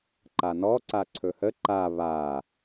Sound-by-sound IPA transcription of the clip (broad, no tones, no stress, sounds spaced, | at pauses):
ǃ a n ɔ ǀ a ǀʰ ɵ h ə ǃ a β a